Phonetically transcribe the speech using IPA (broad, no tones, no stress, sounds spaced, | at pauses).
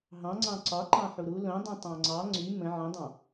ɦ ɑ̃ ŋ͡ǀ ɑ̃ ǀ ɒ ǃ ɑ̃ ħ u ɾ u l õ dˤ ũ tˤ ɑ̃ ŋ͡ǀ ɑ ŋ͡ǀ y m ə̃ ʕ ə̃ dˤ ɑ̃